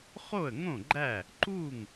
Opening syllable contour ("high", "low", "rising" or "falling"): falling